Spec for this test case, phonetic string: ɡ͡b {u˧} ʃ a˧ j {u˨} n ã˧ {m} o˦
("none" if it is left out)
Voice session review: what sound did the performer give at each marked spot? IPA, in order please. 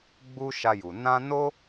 u˧, u˨, n

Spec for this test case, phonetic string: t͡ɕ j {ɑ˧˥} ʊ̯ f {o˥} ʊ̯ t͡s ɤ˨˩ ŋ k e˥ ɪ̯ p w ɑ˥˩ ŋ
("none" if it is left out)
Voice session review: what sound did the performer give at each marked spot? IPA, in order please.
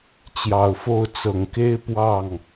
ɑ˨˩, o˥˩

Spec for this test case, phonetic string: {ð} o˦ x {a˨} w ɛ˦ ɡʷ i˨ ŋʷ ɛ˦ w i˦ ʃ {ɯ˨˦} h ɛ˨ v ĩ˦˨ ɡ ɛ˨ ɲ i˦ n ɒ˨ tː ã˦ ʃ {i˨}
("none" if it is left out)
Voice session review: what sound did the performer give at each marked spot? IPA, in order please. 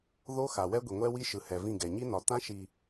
ð, a˨, ɯ˨, i˨

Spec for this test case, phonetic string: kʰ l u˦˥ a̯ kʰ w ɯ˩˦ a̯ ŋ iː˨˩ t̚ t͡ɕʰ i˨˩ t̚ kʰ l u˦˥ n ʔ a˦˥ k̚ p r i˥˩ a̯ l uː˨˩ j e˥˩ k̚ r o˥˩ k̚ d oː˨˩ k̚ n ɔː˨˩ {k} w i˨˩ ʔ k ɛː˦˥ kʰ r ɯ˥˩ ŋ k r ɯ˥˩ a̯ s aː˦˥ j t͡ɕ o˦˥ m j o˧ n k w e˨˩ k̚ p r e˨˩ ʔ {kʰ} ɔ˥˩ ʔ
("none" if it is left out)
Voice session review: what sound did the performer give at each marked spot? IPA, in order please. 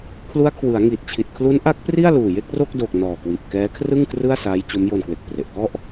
k, k

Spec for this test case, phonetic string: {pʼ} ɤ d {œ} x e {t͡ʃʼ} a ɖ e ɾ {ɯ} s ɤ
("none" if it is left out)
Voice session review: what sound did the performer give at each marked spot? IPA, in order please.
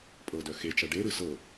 pʼ, œ, t͡ʃ, ɯ

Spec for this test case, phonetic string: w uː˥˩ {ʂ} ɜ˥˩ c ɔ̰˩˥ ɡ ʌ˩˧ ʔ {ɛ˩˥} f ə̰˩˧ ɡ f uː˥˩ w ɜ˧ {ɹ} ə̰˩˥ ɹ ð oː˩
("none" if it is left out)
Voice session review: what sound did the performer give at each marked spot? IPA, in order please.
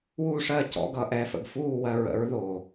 ʂ, ɛ˩˥, ɹ

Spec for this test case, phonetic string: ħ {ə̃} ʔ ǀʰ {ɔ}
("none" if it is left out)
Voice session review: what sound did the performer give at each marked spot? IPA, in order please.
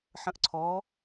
ə̃, ɔ

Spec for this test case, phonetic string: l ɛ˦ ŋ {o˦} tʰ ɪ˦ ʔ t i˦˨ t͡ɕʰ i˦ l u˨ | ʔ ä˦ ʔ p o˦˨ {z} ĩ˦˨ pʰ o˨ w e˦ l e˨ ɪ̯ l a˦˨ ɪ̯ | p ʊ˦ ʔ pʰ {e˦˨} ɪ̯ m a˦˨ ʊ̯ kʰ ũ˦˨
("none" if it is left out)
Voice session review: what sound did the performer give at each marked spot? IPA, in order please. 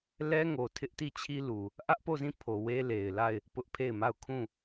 o˨, z, e˦˨

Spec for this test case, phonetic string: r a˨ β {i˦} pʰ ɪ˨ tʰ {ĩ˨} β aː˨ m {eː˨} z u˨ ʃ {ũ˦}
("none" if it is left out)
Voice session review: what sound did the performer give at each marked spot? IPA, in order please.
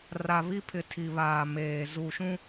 i˦, i˨, eː˨, ũ˦

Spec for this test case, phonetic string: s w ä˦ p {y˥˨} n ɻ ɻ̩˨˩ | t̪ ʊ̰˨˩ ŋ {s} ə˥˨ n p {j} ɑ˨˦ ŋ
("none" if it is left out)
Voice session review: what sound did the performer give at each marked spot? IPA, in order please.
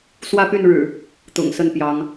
y˥˨, s, j

